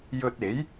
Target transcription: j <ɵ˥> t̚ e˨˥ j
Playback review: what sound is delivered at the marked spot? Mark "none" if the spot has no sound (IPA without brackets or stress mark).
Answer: ɵ˧